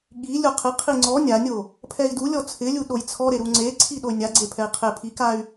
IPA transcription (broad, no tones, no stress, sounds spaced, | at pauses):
ɠ i lʲ o qʰ ɪ qʰ i ŋ͡ǀ ɔ nʲ a nʲ o | pʰ ɛ i̯ d u lʲ ɔ t͡sʰ ɪ lʲ u ɗ o j t͡sʰ ɔ ɾ e ɾ u ŋ͡ǀ e ǀʰ i ɗ o y̯ nʲ a ɡ͡ǀ e pʰ ɛ i̯ qʰ e pʰ i k a y̯